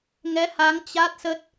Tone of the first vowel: rising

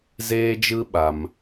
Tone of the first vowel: high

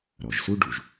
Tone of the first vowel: low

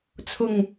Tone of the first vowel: low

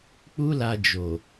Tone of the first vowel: high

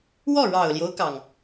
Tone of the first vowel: falling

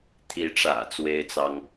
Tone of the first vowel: rising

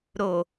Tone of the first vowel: low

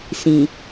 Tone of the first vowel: low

